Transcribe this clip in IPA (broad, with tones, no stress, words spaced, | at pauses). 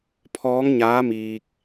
pʰɔː˧˥ŋɲaː˧˥miː˧k̚